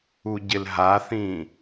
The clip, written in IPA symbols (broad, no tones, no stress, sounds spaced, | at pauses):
u ɟ ɪ l ɦ a θ ĩː